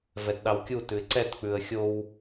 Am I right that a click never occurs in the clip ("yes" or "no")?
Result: no